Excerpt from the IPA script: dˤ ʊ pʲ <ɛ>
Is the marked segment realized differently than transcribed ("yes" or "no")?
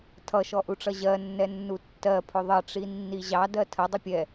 no